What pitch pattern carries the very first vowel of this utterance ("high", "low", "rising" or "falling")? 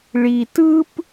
low